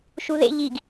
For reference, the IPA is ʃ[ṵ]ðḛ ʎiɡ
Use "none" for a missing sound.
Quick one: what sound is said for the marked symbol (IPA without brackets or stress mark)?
u